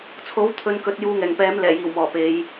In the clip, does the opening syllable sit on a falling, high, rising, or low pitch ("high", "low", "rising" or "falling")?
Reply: rising